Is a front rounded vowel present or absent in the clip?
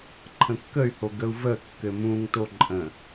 present